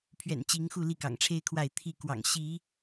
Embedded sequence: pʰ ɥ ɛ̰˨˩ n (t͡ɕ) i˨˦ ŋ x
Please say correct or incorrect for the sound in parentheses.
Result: correct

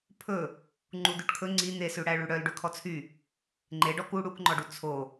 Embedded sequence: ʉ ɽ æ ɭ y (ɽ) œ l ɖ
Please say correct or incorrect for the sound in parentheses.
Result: correct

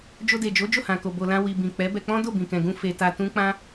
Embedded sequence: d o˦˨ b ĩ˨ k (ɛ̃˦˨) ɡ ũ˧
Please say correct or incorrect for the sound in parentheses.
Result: incorrect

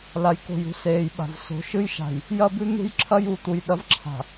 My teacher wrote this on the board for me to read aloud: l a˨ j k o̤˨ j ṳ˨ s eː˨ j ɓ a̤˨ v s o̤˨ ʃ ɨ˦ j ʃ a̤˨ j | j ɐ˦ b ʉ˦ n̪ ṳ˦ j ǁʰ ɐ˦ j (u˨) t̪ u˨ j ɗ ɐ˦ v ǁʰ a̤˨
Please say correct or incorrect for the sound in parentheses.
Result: correct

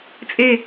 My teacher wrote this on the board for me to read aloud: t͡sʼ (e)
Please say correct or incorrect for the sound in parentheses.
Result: correct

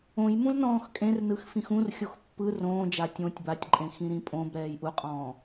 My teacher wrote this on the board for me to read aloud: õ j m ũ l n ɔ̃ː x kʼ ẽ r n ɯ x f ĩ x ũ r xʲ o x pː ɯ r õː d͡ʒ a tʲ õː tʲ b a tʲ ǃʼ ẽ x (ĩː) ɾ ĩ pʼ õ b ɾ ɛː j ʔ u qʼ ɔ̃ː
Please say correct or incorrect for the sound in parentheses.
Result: incorrect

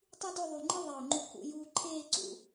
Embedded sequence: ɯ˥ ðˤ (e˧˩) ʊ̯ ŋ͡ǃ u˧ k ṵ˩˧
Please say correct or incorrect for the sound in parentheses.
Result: correct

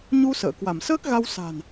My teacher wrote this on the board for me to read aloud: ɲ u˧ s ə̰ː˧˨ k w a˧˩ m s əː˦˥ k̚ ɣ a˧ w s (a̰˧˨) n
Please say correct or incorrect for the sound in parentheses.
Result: incorrect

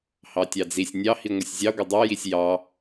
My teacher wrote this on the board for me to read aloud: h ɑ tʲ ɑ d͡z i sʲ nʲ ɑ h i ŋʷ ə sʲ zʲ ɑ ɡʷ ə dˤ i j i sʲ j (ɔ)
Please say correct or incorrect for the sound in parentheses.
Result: incorrect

